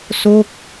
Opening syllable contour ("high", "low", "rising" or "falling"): falling